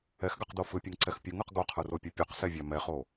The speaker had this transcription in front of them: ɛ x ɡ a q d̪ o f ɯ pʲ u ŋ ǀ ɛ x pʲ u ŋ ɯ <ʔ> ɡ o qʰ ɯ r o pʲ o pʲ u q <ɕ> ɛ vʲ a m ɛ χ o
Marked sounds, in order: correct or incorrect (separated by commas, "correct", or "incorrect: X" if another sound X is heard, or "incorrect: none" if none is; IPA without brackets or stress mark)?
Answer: incorrect: q, incorrect: s